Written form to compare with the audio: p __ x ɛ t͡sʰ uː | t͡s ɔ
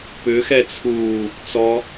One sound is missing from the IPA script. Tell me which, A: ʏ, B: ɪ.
A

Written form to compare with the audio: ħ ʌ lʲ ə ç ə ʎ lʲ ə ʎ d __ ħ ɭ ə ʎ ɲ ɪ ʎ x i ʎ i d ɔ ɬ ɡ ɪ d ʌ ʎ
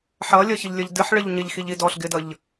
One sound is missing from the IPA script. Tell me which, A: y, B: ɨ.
B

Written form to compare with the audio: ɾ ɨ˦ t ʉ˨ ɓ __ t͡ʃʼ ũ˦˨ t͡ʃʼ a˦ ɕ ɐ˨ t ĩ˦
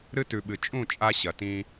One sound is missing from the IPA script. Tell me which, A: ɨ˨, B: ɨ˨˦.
A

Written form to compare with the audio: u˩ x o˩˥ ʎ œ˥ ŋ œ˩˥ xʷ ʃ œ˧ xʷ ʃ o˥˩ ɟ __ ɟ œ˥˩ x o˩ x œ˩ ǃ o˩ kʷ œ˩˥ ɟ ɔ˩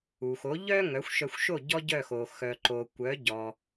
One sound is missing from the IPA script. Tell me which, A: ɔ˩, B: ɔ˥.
B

